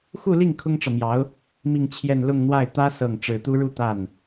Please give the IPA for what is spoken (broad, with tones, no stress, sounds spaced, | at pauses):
x u˥˧ l i˥˩ ŋ kʰ ʊ˥ ŋ ʈ͡ʂ ɤ˨ m j ɑ˧˥ ʊ̯ | m i˥˧ ŋ t͡ɕʰ j ɛ˥˧ n l ʊ˥˧ ŋ n̪ w a˥˩ ɪ̯ t̪ ä˥ s ɤ˥˩ ŋ ʈ͡ʂ ɻ̩˨˩ t̪ u˥ ɻ u˥˧ t̪ a˥˩ n